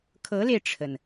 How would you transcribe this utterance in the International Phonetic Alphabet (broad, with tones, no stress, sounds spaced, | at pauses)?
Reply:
kʰ ɤ˧˥ l e˧ ɪ̯ ʈ͡ʂʰ ə˩ n